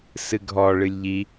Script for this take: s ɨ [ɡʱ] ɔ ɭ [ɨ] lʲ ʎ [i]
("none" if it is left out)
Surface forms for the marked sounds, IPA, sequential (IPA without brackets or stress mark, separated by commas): ɡʱ, ɨ, i